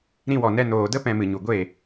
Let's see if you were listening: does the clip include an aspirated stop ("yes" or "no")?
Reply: no